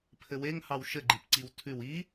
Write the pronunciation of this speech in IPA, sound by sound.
pʰɘweŋhɑw ʃɘɡ͡ǃip ǀiwtʰʉw i

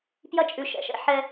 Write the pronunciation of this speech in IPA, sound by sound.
pjɐ˦t͡ʃʼʉ˧ ʃɛ̰˨ʃɛ̰˧ ħɛ˧

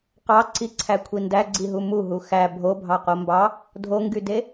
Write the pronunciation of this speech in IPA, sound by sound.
qɑǀiǀʰækʷʰi ndæɡ͡ǀiɦu muɦu xæ bʱobʱɑqo mbɑ | dʱoŋɡyde

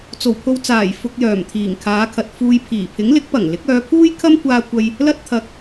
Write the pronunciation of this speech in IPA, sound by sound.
t͡so˨˩wpʰo˧wt͡saː˨˩j fʊ˧k̚jœː˨˩m t̪ʰiː˨˩ŋkʰaː˨˧kʰɐ˨t̚ fuː˧jpʰiː˨˩ pʰɪ˨˥ŋlɪ˨˥k̚pɐ˨˩ŋlɪ˨˥k̚ œː˨˧pʰuː˥jkʰɐ˥m kʷaː˥kʷɐ˥j | lɐ˥t̚t̪ʰɐ˧k̚

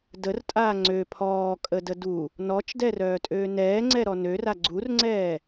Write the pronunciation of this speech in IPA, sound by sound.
dərtʼaː ŋ͡ǀø pʰɔːkʼədə du | nɔt͡ʃdɛrœːtʼøː nɛːŋ͡ǀɛɾɔ nøra ɡ͡ǀurŋ͡ǀɛː

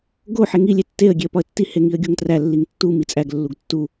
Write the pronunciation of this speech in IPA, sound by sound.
ɡo ħeŋi lʲetːeə̯ ɡʲeə̯pɒə̯tːi heŋiə̯ɡʲoŋtræ lːiŋtːu mit͡sʼæɡ lːuɡtːu

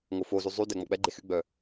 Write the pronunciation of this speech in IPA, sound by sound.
ŋofozy zˤy dɛŋ͡mɔk͡pɛɡ͡ǃe xyɡ͡bœ

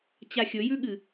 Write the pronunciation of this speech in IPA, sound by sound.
t͡ɕaxʲɵjʉɠɨ

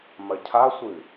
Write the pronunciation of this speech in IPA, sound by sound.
mɐcʰasʷɨ

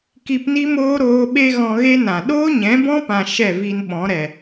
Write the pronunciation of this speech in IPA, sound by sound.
ki˧pni˦moː˦ ɾoː˧ ɓe˦ ɣɔ̃˧ɣe˦nã˨ ɗoː˦ɲɛ̃˨˦bɔ̃˦pã˨ ʃɛ˦˨vi˧nɓɔ̃˨˦ɾɛ˨

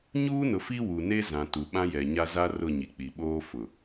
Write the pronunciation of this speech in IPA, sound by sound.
ɲuː˦nʊ˨fi˦ wu˨ne˦ zã˨ tu˨ɓã˦jɛ˨ɲa˦ za˦rʊ˦˨ ɲi˨k͡pi˨ɓoː˦ fʊ˨

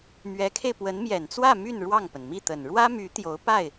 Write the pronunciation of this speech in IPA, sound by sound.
mɥɛ˧˥kʰe˧ɪ̯pwə˧˥n mjɛ˨˩nt͡swä˥˧ my˥˧n ɻwɑ˥˩ŋpə˩nmi˥˩t̪ə˨˩n ɻwä˥my˧˥ t̪jo˧˥ʊ̯ pa˥˩ɪ̯

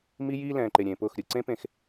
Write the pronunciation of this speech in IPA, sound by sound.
mi˦jiː˦lɛ̃ː˨ǃe˨ ɾʲẽː˨pʊː˦˨xɾʲɯ˨ ǀẽ˦ pẽ˦˨x

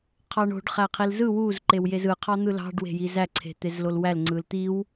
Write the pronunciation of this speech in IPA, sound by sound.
qʰɑɳo̤ɖ χæqʰilzɯ wuz ǃewjezɯ qʰɑn̪ɯlɑ̤ɖ we̤jizæ ǀʰe̤t̪ezlolwæl ŋ͡ǀɯlt̪iw

